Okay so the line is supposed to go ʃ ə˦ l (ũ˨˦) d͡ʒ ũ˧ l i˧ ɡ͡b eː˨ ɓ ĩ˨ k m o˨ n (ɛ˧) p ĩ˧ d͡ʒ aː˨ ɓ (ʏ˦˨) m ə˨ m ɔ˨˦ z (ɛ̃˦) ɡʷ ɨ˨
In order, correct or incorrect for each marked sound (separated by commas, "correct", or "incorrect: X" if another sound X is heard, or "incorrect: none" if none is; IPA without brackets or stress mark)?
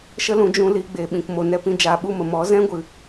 correct, correct, incorrect: u˦˨, correct